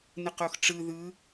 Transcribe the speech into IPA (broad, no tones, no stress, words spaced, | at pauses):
nɯqoxʈ͡ʂɯ ðɯ